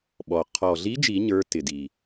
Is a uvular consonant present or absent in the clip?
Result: present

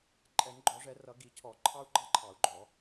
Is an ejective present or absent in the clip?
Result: present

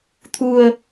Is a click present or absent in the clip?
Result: absent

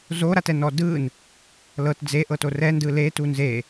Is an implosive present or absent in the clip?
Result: absent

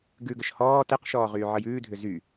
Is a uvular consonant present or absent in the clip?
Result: present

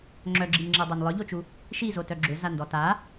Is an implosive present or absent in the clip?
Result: absent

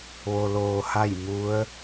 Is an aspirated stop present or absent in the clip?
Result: absent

